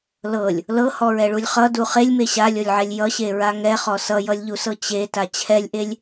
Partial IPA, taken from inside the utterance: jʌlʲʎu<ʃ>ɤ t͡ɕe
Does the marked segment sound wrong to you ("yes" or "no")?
yes